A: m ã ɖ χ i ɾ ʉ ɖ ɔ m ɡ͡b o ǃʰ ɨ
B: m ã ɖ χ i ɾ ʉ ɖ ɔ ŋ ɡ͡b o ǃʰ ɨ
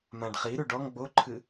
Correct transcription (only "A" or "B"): B